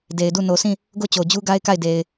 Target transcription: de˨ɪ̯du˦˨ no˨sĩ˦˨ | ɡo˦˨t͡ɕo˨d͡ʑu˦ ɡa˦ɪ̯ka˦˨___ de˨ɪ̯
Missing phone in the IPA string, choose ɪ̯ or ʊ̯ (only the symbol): ɪ̯